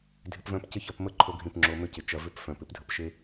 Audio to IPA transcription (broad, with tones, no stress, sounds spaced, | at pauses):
dʱ ɪ˦ p v œ̃˦ p c ɪ˦ ç ɐ˦˨ p m ə˦ ǃʰ o˦ ɡʱ ĩ˦˨ p ŋ͡ǁ o˧ m ʏ˧ c ɪ˨ t͡ʃ ɐ˧ v ʏ˦ p f œ̃˨ p ɪ˦ p dʱ ə˧ p ʃ e˦